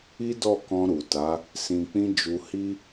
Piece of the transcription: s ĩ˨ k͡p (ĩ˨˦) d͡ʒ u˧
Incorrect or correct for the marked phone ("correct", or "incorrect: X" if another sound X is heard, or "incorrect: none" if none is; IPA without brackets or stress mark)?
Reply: incorrect: ĩ˧